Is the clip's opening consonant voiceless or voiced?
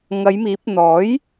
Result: voiced